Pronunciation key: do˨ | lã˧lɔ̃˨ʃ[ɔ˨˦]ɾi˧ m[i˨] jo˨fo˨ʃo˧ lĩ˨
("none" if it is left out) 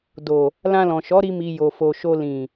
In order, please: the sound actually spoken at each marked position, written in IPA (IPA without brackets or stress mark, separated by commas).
ɔ˨˦, i˨